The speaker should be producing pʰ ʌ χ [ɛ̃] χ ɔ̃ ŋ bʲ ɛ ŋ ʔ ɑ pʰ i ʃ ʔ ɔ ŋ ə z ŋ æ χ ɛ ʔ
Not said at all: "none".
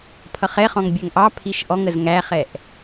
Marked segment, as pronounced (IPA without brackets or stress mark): ɛ